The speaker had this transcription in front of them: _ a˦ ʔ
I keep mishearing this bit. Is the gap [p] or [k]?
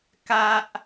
k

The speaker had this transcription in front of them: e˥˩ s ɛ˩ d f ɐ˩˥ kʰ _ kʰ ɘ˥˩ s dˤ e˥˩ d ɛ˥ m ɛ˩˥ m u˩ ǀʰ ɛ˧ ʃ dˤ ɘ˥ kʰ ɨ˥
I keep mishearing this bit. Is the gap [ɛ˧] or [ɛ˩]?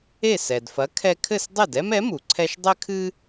ɛ˧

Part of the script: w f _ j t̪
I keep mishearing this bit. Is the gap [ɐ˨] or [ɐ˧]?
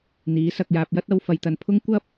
ɐ˧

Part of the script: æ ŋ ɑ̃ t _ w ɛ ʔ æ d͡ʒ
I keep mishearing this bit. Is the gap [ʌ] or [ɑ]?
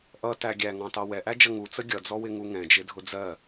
ɑ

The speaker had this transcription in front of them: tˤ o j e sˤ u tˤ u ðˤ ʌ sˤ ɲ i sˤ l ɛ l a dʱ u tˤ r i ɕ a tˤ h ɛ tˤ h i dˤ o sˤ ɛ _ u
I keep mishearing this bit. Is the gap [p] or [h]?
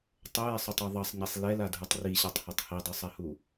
h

